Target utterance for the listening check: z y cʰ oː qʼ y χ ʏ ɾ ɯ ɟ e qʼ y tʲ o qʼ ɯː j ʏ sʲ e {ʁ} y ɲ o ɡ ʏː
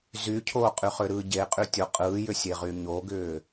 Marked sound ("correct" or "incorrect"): correct